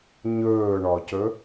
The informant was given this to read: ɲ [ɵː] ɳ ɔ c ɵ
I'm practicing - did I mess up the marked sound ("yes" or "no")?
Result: no